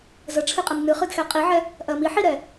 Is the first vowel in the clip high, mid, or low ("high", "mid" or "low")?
mid